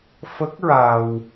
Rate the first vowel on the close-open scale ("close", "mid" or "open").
mid